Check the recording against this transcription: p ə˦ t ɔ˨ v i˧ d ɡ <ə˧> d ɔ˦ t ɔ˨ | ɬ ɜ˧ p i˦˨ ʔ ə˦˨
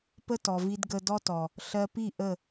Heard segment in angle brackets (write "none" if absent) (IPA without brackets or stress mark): ə˧